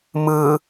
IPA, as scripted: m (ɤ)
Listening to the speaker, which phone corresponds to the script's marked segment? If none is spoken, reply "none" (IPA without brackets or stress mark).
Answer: ɯ